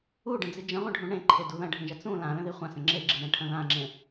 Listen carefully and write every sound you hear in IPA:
u ɖ ə̃ d͡z i d͡ʒ ə̃ ʁʷ ə̃ ɖʱ ũ ɳ ẽ ǃʰ e d u ð ɐ̃ ɖʱ ĩ ʒ ɐ t͡s ũ l ã l ə̃ ð i χʷ ã s ə̃ ŋ͡ǁ e ɡ͡ǁ i ɳ ẽ ʈʰ ɐ̃ ð ã ŋ͡ǁ ẽ

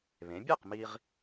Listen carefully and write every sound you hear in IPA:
β ẽ˩˥ bʲ ɛ˥˩ q m i˧ ʁ

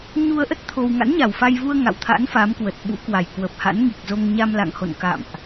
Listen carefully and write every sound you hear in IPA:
ɲ u˧ ə̯ ʔ ə˦˥ t̚ t̪ʰ o˧ w ŋ a̰˧˥ n ɲ a˨˩ w f a˧ j v u˧ ə̯ ŋ a̰˧˨ w t̪ʰ a̰˧˥ n f a˨˦ m k w ə˨˩ t̚ ɓ ṵ˧˥ k w a˨˩ j k w ə˨˩ p̚ h a̰˧˥ n ŋ i˨˩ k̚ z o˧ ŋ ɲ a˧ m l a̰˧˨ ŋ h o̰˧˨ n k a̰˧˨ m ʔ

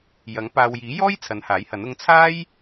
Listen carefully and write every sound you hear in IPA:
j ɐ˨˥ ŋ p aː˨ w j iː˨˥ j ɔː˥ j t͡sʰ ɐ˨˧ n h aː˨˥ j h ɐ˨˥ n ʊ˨˧ ŋ t͡sʰ aː˥ j

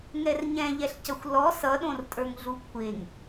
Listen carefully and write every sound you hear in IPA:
ŋ ɛ r ɲ ɛ̃ ʎ ɛ ɬ c ʌ xʷ l ɔ s ʌ ɗ õ r tʼ ə˞ ŋ ɮ u kʷʰ e ŋ

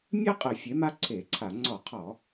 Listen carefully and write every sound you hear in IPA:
mʲ ɜ˥ qʼ ə˧˩˧ fʲ e˩˥ m a˥ ǀʰ e˧˩˧ ǀʰ a˧˩˧ ŋ͡ǀ ɔ˧˩˧ qʰ ɔ˧˩˧

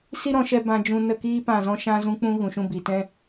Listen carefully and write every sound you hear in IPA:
s i˦ ɾ ɔ̃˧ ʃ ɛ˧ b ã˧ d͡ʒ ũ˧ n ə˦˨ k iː˦ p ã˦˨ z ɔ̃˦ ʃ ã˦ z ũ˦ k͡p ũ˦ ɣ ũ˨ ʃ ũ˧ b i˨ t ɛ̃˦

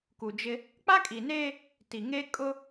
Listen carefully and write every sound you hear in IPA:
k u˨ d͡ʒ ɪ˦ | k͡p a˦ kʼ i˨ n eː˦ | t i˨ ŋ e˦ kʼ ʊ˦

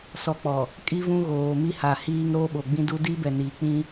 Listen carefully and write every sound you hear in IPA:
s ɔ˨ k͡p ɔ˨ | kʼ i˦ v ũ˦ ɣ oː˨ m i˦ h a˨ h iː˦ ŋ ɾ o˦ ɓ o˨ ɡ͡b ĩ˦ d u˦ d i˦ b ɛ˨ n iː˨ k͡p ĩ˦

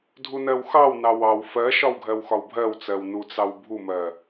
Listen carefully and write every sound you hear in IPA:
dʱ u n ɜ w x ɑ w n ɑ w ɑ w f ɜ ʃ ɒ w ɡʱ ɜ w x ɒ w bʱ ɜ w t͡s ɜ w n u t͡s ɑ w bʱ u m ɜ

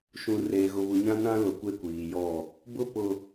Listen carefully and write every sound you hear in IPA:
ʃ ũ˨ r eː˨ ɣ ʊ˨ β u˨ ɲ ã˦ n ã˦ l ʊ˨ kʷ e˦ kʷ iː˨ j ɔ˦˨ | b ʊ˦ p ʊ˨

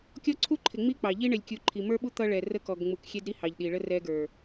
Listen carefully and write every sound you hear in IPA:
kʲ ɔ˦ ǀʰ u˦ ǃʰ ɪ˨ ŋ͡m i˦ k͡p ɑ˨ ʎ i˦ ɳ ɪ˨ lʲ kʲ u˨ ǃʰ i˨ m ə˞˦ ɓ u˦ t̪ ʌ˦ ɭ ɛ˨ r ə˦ k ɔ˨ ɡ ŋ͡m u˨ k xʲ ɛ˦ d ɾ i˦ h ɑ˨ ʎ ɗ i˨ ɭ ə˦ r ɛ˦ ɡ ə˞˨

